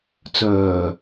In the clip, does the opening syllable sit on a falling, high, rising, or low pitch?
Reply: low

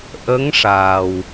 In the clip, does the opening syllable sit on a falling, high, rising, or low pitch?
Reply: rising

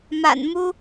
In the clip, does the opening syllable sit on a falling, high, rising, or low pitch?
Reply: low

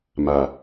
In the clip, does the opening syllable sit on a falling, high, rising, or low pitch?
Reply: low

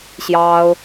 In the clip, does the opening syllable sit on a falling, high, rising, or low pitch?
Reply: high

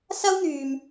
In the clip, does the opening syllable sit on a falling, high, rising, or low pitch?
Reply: high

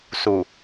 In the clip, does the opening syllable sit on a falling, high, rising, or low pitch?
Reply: low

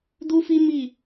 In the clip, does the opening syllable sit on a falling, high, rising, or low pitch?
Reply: high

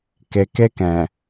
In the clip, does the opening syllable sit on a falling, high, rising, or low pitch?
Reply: low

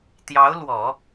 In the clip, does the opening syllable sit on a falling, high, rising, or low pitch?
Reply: rising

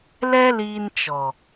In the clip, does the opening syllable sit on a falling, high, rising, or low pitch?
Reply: high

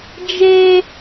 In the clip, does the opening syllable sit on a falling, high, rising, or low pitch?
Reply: high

